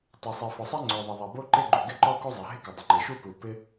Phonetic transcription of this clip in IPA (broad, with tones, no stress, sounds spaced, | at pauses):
tˤ ɛ˩ sˤ e˩ f ɔ˩ sˤ ɛ˥ ŋ͡ǀ o˩ ðˤ ɪ˩ ðˤ ɛ˩ b o˥ ǃ e˥ ɡ͡ǃ u˩ ɡ ɪ˥ ǃ ɔ˥ k u˥ zˤ e˩ ɦ ɪ˥ k ʊ˩ dˤ ɪ˩ ŋ͡ǃ e˩ ʃ u˥ p u˩ p ɪ˥